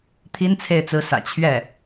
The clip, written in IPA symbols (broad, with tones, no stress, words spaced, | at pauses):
t̪ʰi˥nt͡sʰe˥˩ɪ̯ t͡sɹ̩˧˥sä̰˨˩ t͡ɕʰɥɛ˥˩